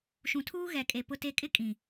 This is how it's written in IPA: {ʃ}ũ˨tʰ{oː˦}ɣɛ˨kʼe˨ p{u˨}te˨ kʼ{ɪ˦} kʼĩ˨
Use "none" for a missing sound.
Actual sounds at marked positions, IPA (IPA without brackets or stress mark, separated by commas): ʃ, uː˦, ʊ˨, ɪ˦